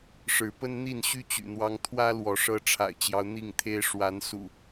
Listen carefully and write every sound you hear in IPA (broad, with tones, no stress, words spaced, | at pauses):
ʂɻ̩˨˦pə˦nn̪i˥˨nɕy˦ t͡ɕy̰˨˩n̪wɑ˦ŋ t̪ʰwä˦ lwɔ˨˦ʂɤ˦ ʈ͡ʂʰa̰˨˩ɪ̯t͡ɕjɑ˦ʊ̯ n̪i˥˨ŋt̪ʰe˦ɪ̯ ʂwa˨˦n sṵ˨˩